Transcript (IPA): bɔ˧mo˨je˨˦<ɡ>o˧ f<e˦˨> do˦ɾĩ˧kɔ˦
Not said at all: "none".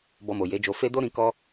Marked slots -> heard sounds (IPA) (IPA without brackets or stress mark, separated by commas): d͡ʒ, e˦